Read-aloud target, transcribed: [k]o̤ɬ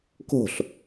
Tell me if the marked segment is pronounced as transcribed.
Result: yes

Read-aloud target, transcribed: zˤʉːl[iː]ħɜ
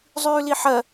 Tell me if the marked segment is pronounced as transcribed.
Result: no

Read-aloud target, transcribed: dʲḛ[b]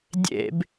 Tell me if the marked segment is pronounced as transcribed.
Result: yes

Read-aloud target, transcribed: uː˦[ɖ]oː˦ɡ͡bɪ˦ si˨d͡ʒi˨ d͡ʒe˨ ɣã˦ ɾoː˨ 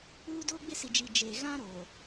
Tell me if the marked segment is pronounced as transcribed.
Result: no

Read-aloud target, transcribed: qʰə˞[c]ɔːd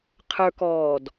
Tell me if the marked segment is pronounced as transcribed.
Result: no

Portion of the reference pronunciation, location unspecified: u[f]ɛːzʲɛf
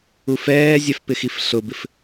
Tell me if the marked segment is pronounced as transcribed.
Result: yes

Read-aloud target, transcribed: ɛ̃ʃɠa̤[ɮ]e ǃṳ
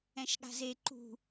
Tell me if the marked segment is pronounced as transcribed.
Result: no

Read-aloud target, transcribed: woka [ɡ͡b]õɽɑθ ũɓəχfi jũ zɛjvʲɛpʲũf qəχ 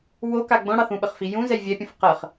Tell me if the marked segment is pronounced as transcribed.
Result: yes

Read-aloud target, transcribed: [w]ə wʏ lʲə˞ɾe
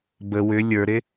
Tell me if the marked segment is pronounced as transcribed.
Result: no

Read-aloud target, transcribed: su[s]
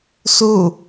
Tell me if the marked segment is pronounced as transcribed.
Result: no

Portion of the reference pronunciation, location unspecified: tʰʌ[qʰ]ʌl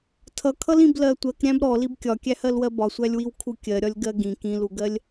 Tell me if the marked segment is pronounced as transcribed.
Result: no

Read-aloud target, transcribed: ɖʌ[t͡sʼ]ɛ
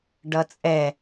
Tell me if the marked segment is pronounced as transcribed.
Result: yes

